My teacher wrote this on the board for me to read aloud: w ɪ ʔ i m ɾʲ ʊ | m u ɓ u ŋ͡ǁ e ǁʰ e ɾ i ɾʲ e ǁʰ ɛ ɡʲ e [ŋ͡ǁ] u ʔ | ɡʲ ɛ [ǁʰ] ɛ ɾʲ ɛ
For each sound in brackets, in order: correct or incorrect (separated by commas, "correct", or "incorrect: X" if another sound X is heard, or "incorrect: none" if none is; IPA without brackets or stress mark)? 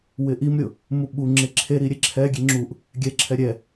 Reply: correct, correct